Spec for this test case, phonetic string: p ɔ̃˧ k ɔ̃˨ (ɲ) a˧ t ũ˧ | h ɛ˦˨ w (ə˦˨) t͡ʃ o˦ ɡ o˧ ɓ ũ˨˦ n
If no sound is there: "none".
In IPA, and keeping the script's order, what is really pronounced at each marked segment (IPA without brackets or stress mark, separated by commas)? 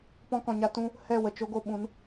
ɲ, ə˨